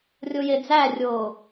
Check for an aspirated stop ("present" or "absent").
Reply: absent